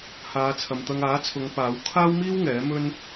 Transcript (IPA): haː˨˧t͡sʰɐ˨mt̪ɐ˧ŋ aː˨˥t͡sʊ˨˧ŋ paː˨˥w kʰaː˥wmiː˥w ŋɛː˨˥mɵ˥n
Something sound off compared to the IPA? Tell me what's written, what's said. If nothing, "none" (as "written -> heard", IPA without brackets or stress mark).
t͡s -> t͡sʰ